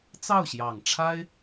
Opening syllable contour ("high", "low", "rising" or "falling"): falling